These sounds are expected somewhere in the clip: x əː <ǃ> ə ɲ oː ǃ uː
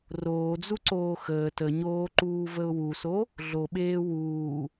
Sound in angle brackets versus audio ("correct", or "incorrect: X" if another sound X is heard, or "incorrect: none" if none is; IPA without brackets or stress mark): incorrect: t